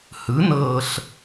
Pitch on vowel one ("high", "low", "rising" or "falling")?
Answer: rising